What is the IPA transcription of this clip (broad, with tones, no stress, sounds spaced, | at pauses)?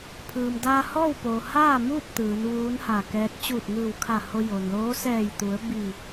pʰ ɯː˩ m d aː˧ h ɔː˥˨ w p oː˩ h aː˥˨ m uː˥˨ p̚ t̪ ɯː˩˧ n ʋ uː˧˥ n h a˧˩ k ɛː˧˥ t̚ t͡ɕ uː˧˩ t̚ ŋ ɯː˧˩ w kʰ a˧˩ h o˧ j o˩ n l oː˧˥ s ɛː˧˩ j t̪ u˩˧ ə̯ b i˧˩